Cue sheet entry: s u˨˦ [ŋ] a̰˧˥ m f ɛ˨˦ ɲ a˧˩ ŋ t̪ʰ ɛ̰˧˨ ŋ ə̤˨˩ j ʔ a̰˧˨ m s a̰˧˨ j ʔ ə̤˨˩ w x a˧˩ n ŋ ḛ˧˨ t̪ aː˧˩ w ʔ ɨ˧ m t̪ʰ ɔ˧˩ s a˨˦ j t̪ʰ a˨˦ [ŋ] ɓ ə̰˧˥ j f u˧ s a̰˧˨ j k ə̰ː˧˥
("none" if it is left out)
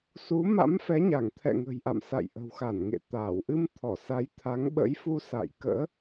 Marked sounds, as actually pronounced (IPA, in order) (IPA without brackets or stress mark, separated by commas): m, ŋ